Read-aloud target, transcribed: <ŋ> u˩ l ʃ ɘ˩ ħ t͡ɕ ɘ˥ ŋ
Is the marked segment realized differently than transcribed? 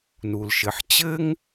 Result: yes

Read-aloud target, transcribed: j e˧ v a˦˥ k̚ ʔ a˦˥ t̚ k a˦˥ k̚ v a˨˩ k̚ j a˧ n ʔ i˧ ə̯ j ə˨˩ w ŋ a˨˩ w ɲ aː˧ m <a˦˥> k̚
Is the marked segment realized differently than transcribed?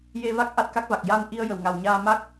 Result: no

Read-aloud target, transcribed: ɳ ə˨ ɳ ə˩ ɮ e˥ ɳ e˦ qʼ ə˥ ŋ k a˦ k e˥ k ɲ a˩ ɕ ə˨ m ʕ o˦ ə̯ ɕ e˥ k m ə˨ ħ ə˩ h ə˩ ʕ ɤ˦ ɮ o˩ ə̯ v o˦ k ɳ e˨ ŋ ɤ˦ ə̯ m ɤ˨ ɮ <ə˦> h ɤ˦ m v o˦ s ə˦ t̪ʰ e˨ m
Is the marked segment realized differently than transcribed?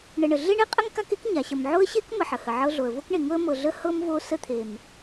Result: no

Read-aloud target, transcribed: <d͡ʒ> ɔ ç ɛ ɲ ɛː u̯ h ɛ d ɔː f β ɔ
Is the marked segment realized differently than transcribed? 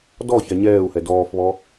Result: yes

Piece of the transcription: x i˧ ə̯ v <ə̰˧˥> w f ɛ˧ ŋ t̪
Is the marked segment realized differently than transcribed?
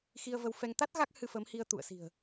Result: yes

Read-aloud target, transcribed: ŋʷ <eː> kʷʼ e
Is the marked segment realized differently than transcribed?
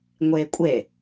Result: no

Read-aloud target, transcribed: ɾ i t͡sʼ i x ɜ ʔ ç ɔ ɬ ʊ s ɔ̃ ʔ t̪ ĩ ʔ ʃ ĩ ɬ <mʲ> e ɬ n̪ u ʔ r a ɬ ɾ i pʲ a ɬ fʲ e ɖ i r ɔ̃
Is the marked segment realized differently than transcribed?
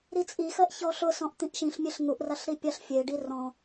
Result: no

